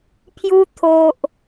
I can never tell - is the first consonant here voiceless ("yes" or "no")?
yes